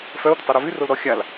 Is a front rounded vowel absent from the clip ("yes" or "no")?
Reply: no